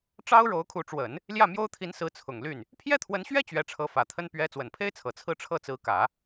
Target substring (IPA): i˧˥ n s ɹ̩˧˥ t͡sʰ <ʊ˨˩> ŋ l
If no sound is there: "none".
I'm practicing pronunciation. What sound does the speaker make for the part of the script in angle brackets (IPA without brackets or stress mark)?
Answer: ʊ˨˩